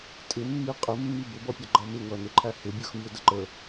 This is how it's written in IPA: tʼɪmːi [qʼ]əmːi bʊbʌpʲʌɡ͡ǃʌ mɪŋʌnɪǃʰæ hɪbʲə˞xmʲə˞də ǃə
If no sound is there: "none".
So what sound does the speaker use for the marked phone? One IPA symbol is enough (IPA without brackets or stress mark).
qʼ